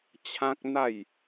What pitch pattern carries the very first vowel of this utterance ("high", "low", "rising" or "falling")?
high